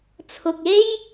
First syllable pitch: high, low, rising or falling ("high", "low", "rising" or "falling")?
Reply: low